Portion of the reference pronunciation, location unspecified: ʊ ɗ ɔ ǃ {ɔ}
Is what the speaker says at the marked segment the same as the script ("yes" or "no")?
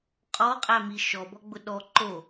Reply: no